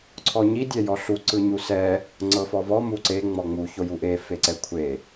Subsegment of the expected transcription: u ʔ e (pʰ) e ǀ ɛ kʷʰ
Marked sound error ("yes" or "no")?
yes